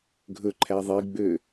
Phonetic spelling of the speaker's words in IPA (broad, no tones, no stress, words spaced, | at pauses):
ɡʱɵǃʰæ ðˤiɡ͡bø